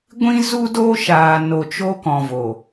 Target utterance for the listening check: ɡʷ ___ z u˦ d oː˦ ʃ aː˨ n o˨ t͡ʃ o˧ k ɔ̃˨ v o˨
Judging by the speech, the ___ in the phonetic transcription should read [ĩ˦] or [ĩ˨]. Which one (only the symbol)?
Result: ĩ˦